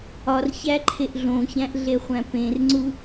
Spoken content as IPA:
ɒ r ç æ ǃʰ e ʔ ɮ õ ç æ̃ ʔ ɮ e χʷ æ̃ p ẽ r ŋ͡ǀ u

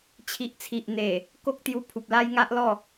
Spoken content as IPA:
t͡ɕʰ i˨ ʔ t͡sʰ i˨ ʔ n̪ e˨˩ | k o˦ k̚ t̪ j u˧ pʰ u˨ p̚ l a˦ j ŋ a˦ ʔ l ɔ˥˧

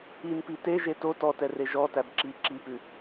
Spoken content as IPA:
i n p i t e ʒ e t o t ɔ t ɛ r e ʒ ɔ t æ b ǁ i ǁ i p ʉ

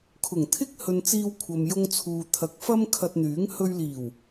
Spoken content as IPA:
kʰ ʊ˨˩ ŋ t̪ʰ ɪ˥ k̚ h ɵ˧ n t͡s iː˧ w kʷʰ ɐ˨ m j ʊ˧ ŋ t͡sʰ uː˨ t̪ʰ ɐ˨˥ k̚ f ɐ˥ m kʰ ɐ˧ t̚ n̪ yː˨˥ ŋ h ɵ˧ ɥ l iː˨˩ w

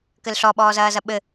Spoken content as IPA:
k ɘ l ɬ ɔ ɓ ɔː z ɐː z ɐ ɓ ɘ

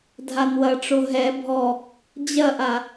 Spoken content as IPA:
dʱ a n w ɐ ʈ͡ʂ o ɦ ɛ bʱ ɔ | d͡ʑ ɐ ʔ a

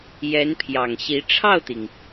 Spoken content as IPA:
j ɛ˧˥ n pʰ j ɑ˨˩ ŋ ɕ i˧˥ ʈ͡ʂʰ ɑ˥˩ ʊ̯ t̪ i˩ ŋ

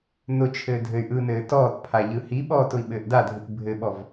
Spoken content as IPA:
n ʊ t͡ʃʰ ɘː dʱ ɘ y̯ ʔ ɯ n ɘː t ɔː t pʰ a ʎ ɯ h i ɓ ɔː t ʊ i̯ ɓ ɘː ʔ d a dʱ ɯ t bʱ ɘ ɓ ɔ v

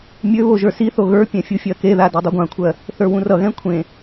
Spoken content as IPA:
mʲ ø β o ʒ ə˞ s i θ o ɣ ə˞ pʲ ɛ̃ fʲ u fʲ ɜ k e ð a d o dˤ u ɡʷ ã kʷʰ ɜ | θ ə˞ w ũ r ʌ ɣ ɛ̃ kʷʰ ẽ

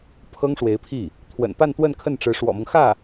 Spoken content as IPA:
pʰ ɤ˥ ŋ ʂ w e˧˥ ɪ̯ pʰ i˥˩ | t̪ʰ w ə̰˨˩ n p a˥˧ n t̪ w ə˥˧ n kʰ ə˥˩ n ʈ͡ʂ ɻ̩˧˥ ʂ w ɔ̰˨˩ m ɤ˦ ŋ x ä˥˩

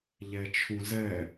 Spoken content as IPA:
ʎ ɛ t͡ʃʰ ũ z ɛ

